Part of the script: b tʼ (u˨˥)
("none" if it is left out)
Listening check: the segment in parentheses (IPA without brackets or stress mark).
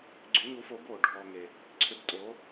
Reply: o˨˥